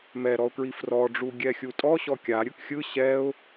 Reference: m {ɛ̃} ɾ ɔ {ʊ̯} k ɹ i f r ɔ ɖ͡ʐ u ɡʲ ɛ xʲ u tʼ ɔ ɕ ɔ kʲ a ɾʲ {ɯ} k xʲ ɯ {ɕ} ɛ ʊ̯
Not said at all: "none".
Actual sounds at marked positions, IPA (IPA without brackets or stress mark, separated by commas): ɛ, ʊ̯, ɯ, ɕ